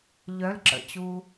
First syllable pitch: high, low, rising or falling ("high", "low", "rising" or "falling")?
rising